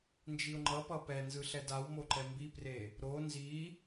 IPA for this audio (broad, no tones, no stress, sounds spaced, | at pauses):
n d͡ʒ i ʊ̯ ŋ͡ǃ ʌ p ʌ p ɛ n z ɯ ɬ ɛ d a w m o ǃ ɛ m b i p r e | ɾ o n z i